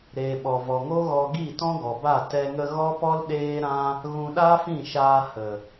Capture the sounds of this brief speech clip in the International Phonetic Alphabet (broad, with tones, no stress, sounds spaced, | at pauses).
ɾ eː˨ ɓ ɔ˨ v ɔ˨ ŋ o˦ ɣ ɔ˧ ɡ i˦˨ t ɔ̃˦ ɡ ɔ˨ b a˦˨ t ɛ˧ ŋ ə˧ ɣ ɔ˦ p ɔ˦ l ɗ eː˦ ɾ ã˦ | ɣ ũ˧ ɗ a˦ f ĩ˦˨ ʃ aː˧ h ə˨